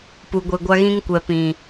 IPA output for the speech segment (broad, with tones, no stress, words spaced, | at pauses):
pu˨ɡʷe˨ɡʷa˦ ɣĩ˦ŋkʷɛ˨pĩ˨